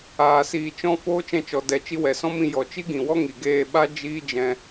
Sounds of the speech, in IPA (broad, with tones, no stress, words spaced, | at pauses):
aː˨siː˨t͡ʃɔ̃˧ foː˦t͡ʃɛ̃˧t͡ʃɔ˨ dɛ˨ t͡ʃi˧wɛ˨sɔ̃˦mĩ˧ jɔ˨t͡ʃi˦ɡĩ˨wɔ˦ ŋi˨ɡeː˦˨ ɓa˦ d͡ʒiː˦d͡ʒɛ̃˧